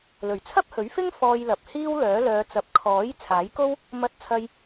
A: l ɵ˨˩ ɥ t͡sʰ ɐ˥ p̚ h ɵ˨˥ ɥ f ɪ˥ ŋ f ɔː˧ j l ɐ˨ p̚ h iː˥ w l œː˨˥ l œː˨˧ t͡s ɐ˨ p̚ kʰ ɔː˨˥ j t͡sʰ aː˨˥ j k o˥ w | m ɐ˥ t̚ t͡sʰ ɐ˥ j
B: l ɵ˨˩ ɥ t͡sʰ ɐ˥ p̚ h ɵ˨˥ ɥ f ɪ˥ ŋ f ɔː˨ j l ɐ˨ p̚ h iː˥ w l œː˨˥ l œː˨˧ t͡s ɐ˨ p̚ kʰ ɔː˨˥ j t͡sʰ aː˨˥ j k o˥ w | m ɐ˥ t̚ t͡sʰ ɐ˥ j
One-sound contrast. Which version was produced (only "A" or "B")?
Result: A